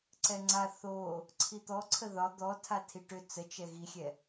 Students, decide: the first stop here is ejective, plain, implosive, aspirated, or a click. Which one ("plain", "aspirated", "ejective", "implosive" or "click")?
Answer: click